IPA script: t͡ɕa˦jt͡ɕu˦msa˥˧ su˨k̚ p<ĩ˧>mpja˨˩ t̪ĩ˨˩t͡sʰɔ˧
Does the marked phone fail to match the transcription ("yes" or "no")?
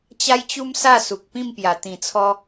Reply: yes